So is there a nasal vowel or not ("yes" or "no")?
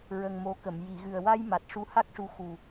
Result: no